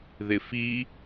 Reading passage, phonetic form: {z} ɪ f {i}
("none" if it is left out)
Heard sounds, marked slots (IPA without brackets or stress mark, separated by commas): ð, i